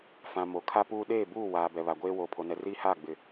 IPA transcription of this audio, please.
f ã˨ m o˨ kʰ a˦ p uː˦ ɗ eː˦˨ b uː˦˨ w aː˨ b ɛ˨ β a˨ ɡʷ eː˦ w oː˨ pʰ o˨ n ɛ˨ r iː˦ h aː˦˨ ɡ͡b ɪ˨

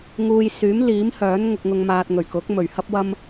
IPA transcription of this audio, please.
ŋ uː˧ j s yː˨˥ m l iː˨˥ m h œː˨˥ n ŋ ʊ˧ k̚ ŋ ʊ˧ ŋ m aː˧ t̚ ŋ ɵ˨˩ ɥ k ʊ˨˥ k̚ m ɵ˨˩ ɥ h ɐ˥ p̚ w ɐ˥ m

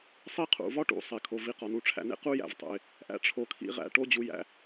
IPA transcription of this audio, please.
sˤ i˦ qʰ ṵ˨ v ɒ˦ ʈ ṵ˨ sˤ e˨ kʰ o˨ v i˧ q ɒ˨ n u˧ ʈ͡ʂʰ æ̰˧ n ḛ˦ q u˦ j æ̰˨ v tˤ ṵ˨ ɪ̯ | ʔ æ̰˦ ʈ͡ʂʰ o˧ kʰ ḭ˦ ʁ æ̰˧ ʈ o˦ d͡ʑ u˧ j æ̰˧

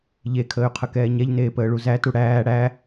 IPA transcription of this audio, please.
ʎ e kʰ əː y̯ qʰ ə k ɛː ɲ ɛ ʎ n eː p əː ɭ u z æ t u ɽ æː ɽ æ

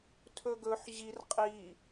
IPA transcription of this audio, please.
tʰ ɵ ɡ ɵ ħ ʑ i r qʼ i

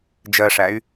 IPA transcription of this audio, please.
d͡ʒ ɜ ʂ æ y̯

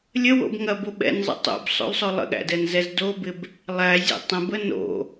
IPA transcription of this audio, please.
lʲ ə w o̰ b ŋ ɐ b o ɓ ɛ̰ n zˤ ə̰ tˤ o̰ b sˤ o̰ l sˤ o lˠ ə̰ ɠ æ̰ d ɛ n z ɛ z d o b ɪ b | lˠ æ zʲ ɛ̰ tˤ ə̃ b ə n o̰

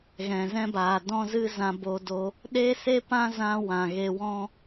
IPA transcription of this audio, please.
ɣ ɛ̃˨ z ɛ̃˦ b aː˨ d ɔ̃˦ z ɨ˦ z ã˧ b o˧ d o˧ | ɗ e˦ s e˦ p ã˦ z ã˦ w ã˨ ɣ e˧ w ɔ̃˦

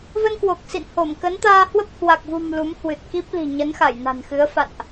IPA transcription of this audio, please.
v ə˧ n k w o˨˩ k̚ s ḭ˧˨ n h o˧˩ m k ə˨˦ n t̪ aː˧ h w ə˦˥ p̚ h w a˨˩ k̚ v ṳ˨˩ m l u˨˦ m h w ɨ˨˩ t̚ k i˦˥ p̚ l i̤˨˩ ɲ ə˨˦ n x a˧˩ j n a̤˨˩ n x ɨ˨˦ ə̯ f a̰˧˨ n ʔ

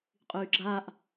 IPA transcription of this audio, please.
qʼ yː ɡ͡ǁ aː ʔ

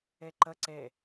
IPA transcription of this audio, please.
e ǃ ə ǀ e

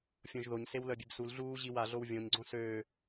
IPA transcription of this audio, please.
fʲ õ ʒ ð o ɲ s e w l œ bʲ e b s u l ɮ uː ʑ i w a ɮ o w vʲ õ ɲ ɡ͡ǀ õ s øː

